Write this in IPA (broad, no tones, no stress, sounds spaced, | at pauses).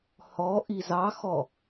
h ɔ ʔ i z ɑ x ɔ